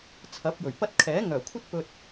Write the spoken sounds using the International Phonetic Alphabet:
t͡sʰɐ˨˥p̚jɵ˨˩ɥpɐ˥t̚ kʰɛː˨˥ ŋœː˨˩kʷʰɐ˥t̚pɵ˧t̚

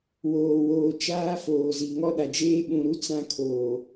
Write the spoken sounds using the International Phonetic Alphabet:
woː˨woː˨ t͡ʃaː˦ foː˨zi˨ ŋɔ˦ɗa˨d͡ʒeː˦ ɓũ˨ɾu˦ t͡sã˦kʰoː˨

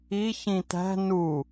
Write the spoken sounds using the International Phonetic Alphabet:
i çĩt̪æ̤ nu

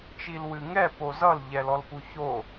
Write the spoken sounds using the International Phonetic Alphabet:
t͡ʃilwɨŋɛ pozʌl ʎɛlɔlpuço

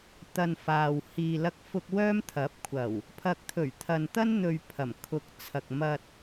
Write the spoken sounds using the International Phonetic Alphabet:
t̪ɐ˨n faː˨w hiː˨lɐ˧k̚fʊ˧k̚ wœː˥mt̪ʰɐ˨˥p̚ kʷʰɐ˨˩w | pʰɐ˨k̚t̪ʰɵ˨˩ɥ t̪ʰɐ˨nt̪ɐ˥n n̪ɵ˧ɥpʰɐ˨˩m kʰʊ˨˥k̚t͡sʰɐ˨k̚ mɐ˧t̚

